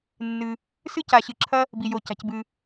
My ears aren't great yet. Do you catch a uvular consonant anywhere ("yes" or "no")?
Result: no